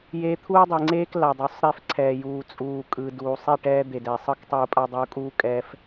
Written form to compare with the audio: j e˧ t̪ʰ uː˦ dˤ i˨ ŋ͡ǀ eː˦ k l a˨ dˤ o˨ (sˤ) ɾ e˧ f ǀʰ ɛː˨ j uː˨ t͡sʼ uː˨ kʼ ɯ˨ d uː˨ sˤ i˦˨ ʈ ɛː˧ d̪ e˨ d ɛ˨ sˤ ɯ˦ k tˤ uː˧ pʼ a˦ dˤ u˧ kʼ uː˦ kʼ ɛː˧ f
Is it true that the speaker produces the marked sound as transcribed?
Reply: yes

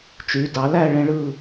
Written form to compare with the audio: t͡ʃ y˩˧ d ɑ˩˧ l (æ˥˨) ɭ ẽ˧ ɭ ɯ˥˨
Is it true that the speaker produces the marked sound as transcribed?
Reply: yes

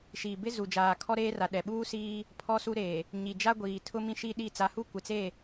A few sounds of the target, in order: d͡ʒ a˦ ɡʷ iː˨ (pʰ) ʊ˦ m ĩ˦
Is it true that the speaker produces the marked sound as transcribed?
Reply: no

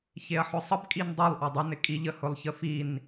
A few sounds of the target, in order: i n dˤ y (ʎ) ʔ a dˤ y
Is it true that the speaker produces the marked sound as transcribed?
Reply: no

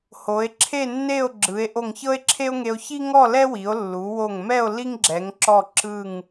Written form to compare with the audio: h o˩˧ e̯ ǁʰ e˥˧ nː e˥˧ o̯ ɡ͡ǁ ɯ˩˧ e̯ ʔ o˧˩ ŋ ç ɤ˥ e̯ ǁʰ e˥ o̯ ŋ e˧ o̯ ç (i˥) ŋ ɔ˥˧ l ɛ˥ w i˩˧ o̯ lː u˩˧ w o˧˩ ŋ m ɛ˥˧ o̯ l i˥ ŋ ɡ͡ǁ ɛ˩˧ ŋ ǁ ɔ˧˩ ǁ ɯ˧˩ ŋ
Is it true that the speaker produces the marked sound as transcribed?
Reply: yes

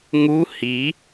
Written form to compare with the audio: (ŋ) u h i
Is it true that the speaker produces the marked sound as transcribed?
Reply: yes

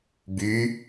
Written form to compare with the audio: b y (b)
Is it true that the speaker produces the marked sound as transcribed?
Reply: no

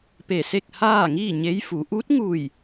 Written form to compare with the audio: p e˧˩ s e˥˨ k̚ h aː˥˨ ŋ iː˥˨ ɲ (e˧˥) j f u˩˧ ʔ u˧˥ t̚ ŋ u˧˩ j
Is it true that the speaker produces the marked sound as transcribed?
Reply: yes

